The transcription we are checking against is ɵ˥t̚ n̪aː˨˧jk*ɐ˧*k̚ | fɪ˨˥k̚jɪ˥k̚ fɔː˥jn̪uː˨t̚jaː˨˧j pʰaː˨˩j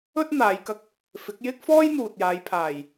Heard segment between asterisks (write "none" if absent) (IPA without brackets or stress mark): ɐ˧